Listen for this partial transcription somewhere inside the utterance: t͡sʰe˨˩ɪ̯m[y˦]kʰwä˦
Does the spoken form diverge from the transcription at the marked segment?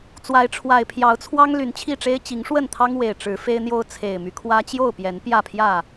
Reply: no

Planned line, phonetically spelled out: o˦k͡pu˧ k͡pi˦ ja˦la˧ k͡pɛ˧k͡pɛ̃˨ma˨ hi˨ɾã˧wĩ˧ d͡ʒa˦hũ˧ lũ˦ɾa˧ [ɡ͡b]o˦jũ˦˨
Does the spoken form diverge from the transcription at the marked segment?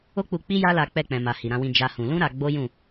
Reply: no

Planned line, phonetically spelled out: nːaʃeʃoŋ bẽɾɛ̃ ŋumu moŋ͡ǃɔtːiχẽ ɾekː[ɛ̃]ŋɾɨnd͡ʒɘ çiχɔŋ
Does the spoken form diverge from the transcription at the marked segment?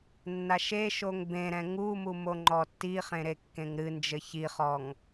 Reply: yes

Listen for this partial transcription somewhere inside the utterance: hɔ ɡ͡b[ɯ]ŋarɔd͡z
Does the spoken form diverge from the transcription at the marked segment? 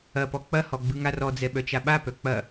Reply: no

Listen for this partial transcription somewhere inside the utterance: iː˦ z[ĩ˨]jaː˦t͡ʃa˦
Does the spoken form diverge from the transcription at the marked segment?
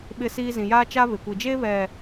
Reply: no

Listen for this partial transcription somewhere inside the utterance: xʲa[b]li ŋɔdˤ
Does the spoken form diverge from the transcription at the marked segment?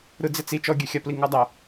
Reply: yes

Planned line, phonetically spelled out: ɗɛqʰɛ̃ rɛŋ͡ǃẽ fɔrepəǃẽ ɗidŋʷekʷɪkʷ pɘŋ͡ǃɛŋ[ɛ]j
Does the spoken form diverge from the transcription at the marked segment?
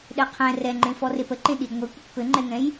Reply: yes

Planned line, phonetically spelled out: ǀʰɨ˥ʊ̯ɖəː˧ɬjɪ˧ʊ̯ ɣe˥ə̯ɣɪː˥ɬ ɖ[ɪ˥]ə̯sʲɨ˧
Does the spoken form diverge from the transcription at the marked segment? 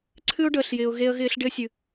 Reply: no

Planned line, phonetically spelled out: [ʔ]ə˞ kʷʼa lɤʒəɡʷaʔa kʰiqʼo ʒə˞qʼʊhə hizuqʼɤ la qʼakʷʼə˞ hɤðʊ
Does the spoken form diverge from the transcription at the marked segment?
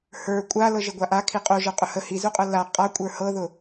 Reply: yes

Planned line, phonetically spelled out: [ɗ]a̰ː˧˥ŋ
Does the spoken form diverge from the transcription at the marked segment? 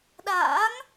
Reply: no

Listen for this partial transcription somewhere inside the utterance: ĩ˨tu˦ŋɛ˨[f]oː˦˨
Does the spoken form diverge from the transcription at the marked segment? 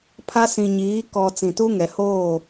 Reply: yes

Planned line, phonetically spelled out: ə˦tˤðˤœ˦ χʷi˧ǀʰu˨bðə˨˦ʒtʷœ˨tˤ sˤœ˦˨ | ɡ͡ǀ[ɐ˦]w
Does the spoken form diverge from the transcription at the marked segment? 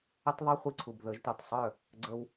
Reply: yes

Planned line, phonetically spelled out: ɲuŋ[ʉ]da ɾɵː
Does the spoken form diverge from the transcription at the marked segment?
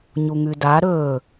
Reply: no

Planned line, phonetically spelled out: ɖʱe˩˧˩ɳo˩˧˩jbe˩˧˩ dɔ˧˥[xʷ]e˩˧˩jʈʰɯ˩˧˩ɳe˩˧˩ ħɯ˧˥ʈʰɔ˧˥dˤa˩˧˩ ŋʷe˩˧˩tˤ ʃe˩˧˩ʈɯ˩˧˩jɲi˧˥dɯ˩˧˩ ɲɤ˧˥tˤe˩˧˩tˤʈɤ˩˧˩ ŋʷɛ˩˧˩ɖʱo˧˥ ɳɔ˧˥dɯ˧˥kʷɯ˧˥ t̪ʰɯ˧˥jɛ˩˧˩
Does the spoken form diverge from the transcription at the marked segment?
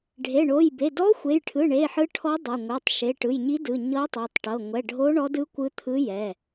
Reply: no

